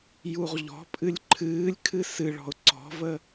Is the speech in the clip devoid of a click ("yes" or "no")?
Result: no